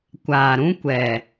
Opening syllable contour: low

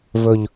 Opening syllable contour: low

